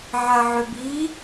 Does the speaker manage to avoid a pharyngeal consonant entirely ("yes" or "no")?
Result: no